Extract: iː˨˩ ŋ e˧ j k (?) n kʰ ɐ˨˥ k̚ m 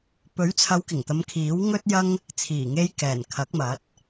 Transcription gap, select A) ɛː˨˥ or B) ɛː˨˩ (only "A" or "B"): B